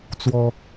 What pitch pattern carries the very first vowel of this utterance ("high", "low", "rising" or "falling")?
high